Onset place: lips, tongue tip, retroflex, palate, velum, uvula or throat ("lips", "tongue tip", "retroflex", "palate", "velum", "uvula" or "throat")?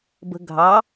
lips